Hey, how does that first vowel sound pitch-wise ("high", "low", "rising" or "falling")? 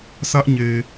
high